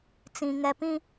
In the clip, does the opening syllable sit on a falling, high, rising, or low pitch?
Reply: low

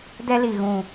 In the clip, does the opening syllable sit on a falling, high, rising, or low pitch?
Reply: high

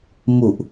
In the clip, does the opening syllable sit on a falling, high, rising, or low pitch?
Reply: low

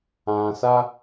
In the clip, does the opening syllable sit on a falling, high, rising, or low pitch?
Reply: low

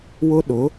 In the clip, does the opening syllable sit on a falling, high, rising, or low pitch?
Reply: high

